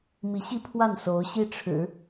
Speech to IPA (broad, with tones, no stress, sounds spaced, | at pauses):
m i˧˥ ɕ i˥˧ pʰ w a˥˩ n s o˧˥ ʊ̯ ɕ i˥˩ ʈ͡ʂʰ ɻ̩˨˩˦